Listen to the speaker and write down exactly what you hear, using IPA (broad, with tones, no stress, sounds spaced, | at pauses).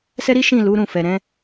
s ɛ˦ ɾ i˦ ʃ ĩ˦˨ l u˨˦ ɾ ũ˦˨ f ɛ˨ ɾ ɛ̃˨˦